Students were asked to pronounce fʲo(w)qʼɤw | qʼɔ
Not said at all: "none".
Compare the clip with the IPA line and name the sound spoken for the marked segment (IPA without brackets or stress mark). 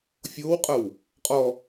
w